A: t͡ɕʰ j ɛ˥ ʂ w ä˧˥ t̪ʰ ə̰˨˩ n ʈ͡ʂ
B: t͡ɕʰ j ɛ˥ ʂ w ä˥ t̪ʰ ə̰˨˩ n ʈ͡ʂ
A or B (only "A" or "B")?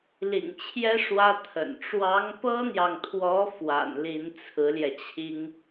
B